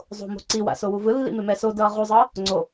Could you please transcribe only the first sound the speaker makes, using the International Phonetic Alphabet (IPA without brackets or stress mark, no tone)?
zˤ